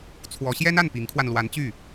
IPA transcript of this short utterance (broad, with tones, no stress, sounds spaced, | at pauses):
t͡sʰ w ɔ˧˥ ɕ j ɛ˥ n a˥˩ n p i˧˥ ŋ kʰ w a˧ n l w a˧˥ n t͡ɕ y˥˩